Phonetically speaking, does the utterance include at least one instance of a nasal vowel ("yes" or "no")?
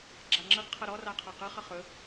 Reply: no